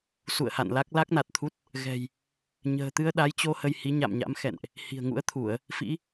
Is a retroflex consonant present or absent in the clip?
absent